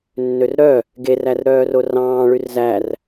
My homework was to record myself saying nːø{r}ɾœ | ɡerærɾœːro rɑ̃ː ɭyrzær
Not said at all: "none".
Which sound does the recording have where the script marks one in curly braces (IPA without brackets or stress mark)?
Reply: r